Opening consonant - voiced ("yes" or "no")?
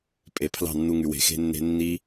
no